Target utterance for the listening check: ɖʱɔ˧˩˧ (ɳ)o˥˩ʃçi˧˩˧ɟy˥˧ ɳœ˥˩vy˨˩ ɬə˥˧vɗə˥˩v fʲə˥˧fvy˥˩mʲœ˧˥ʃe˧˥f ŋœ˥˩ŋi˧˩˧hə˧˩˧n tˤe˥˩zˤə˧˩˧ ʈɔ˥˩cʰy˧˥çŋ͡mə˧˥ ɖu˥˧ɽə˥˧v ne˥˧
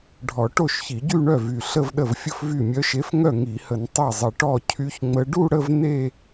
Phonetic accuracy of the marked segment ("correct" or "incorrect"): incorrect